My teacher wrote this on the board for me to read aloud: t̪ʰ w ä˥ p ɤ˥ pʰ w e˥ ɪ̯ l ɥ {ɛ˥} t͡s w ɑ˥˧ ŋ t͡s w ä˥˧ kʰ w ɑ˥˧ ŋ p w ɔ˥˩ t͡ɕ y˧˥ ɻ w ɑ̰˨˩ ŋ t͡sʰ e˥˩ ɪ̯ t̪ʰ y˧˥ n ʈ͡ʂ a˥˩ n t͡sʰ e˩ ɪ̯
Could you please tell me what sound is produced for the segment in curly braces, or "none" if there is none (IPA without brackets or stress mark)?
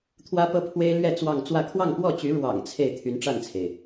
ɛ˥˧